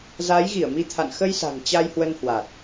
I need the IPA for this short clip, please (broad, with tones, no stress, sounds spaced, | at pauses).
z aː˨˦ j ɣ i˧˩ ə̯ m i˨˦ t̪ʰ a̰˧˨ n x ə˧ j s a̤˨˩ ŋ t͡ɕ a˧ j h w ə˧ n h w a˨˩ t̚